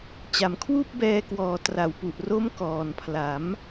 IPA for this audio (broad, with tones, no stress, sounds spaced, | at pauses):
t͡ɕ a˨˩ m kʰ w uː˥˩ p̚ b ɛː˧ k w ɔː˨˩ t r a˩˦ w p u˨˩ ʔ r o˦˥ m k ɔː˨˩ n pʰ l a˩˦ m